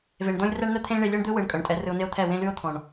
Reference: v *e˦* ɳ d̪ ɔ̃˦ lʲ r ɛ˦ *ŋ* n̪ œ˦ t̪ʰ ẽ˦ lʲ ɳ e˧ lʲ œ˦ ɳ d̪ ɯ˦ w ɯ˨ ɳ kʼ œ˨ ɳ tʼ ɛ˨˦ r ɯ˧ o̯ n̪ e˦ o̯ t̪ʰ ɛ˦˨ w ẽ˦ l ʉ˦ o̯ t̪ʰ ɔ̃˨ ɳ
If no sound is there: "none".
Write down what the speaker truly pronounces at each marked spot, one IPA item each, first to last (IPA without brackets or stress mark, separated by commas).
e˨, ɳ